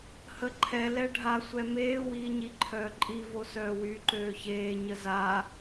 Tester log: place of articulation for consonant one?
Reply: glottal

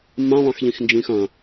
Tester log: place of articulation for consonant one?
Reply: labial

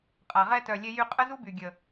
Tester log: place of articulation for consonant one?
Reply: uvular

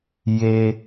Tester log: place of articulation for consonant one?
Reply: palatal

